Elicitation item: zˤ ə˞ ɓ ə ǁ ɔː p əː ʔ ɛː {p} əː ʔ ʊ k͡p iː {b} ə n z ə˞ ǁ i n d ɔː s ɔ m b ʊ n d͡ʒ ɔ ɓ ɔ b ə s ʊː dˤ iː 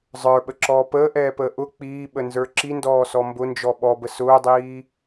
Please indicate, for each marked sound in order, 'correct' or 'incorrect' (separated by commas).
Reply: correct, incorrect